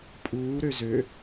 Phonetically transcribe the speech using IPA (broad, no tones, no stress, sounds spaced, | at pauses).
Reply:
pʼ uː ɾ ø z ø